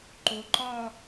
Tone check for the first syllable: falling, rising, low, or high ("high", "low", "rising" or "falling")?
rising